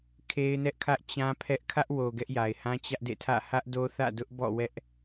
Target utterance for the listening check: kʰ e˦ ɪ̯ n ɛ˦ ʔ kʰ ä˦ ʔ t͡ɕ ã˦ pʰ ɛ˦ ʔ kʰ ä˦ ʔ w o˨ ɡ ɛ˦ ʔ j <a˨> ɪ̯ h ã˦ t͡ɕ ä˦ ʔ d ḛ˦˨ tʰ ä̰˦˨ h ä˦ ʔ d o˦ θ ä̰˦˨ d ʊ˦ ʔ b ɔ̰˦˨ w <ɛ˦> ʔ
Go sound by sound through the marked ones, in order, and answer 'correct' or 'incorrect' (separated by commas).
correct, correct